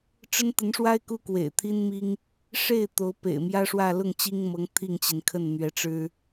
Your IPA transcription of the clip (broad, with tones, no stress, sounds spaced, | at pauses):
ʈ͡ʂ ə˥ n t̪ ə˧˥ n ʂ w a˥ ɪ̯ k u˥ k w ḛ˨˩ ɪ̯ t̪ʰ i˥ n m i˥ ŋ | ʂ e˥˩ ɪ̯ t̪ o˧˥ ʊ̯ p ḛ˨˩ ɪ̯ m j ä˥ ʂ w ä˥˧ l ʊ˥˩ ŋ t͡ɕ i˥ ŋ m ɤ˧˥ ŋ t̪ʰ i˥˩ ŋ t͡ɕ i˩ n kʰ ə˥˩ n n̪ ɥ ɛ˧˥ ʈ͡ʂ ɻ̩˥